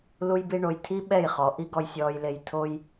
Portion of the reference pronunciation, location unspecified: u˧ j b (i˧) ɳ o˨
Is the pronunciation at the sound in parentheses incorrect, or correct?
correct